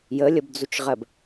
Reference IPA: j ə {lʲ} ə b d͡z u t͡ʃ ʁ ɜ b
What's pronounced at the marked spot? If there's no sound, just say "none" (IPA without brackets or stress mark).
lʲ